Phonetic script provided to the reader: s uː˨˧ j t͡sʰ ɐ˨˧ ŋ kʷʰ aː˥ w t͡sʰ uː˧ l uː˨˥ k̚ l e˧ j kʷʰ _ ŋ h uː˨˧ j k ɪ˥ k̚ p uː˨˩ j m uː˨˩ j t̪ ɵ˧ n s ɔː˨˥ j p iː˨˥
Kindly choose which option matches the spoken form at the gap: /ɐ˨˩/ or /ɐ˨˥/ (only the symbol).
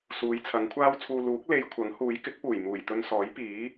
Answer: ɐ˨˥